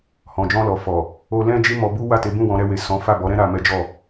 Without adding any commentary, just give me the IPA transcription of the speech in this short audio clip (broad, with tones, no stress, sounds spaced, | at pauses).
h ɔ̃˨ d͡ʒ ɔ̃˧ l ɔ˨ f ɔ˨ | o˧ l ɛ̃˦ d͡ʒ i˦ m ɔ˧ b u˦ w a˦˨ t e˨˦ b ũ˦˨ w ɔ̃˨˦ ɾ ɛ˧ w e˨ s ɔ̃˨˦ f a˦˨ b ɔ˨˦ ɾ ɛ̃˦ ɾ a˧ m ɛ˦ d͡ʒ ɔ˦˨